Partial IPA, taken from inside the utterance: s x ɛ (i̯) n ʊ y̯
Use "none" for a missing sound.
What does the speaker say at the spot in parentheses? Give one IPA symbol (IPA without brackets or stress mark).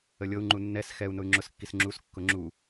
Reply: u̯